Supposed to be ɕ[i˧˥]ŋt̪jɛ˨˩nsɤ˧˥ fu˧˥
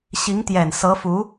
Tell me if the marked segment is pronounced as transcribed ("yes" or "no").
yes